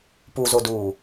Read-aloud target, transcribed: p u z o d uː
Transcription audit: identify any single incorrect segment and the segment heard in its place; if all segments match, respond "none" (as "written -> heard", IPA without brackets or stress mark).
none